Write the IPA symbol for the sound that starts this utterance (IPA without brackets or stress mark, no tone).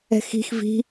ɛ̤